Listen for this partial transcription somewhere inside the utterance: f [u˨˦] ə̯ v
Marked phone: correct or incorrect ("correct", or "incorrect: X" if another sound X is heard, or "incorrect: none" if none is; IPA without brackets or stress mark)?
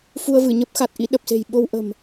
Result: incorrect: u˧